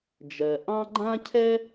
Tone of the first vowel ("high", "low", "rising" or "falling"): low